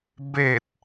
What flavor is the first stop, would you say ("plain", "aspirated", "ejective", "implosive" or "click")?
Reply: plain